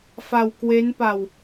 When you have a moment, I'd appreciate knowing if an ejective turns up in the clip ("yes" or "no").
no